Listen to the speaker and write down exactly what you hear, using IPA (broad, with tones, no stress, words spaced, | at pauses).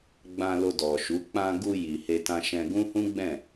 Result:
ɡ͡bã˧lo˧dɔ˨ʃu˨˦ k͡pã˧ ɡu˧ ji˨he˧tã˧ʃɛ̃˧ ɡũ˦hũ˦ɡ͡bɛ̃˦˨